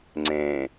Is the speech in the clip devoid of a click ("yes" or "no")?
no